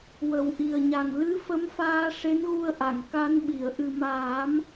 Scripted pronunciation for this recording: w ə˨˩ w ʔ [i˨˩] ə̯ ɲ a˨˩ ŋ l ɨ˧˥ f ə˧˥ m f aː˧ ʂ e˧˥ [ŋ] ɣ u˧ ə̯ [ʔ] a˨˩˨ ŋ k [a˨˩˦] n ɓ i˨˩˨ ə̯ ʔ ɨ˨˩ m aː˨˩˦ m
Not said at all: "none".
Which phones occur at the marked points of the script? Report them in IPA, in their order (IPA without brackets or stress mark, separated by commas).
i˨˩, n, ʔ, a˧˥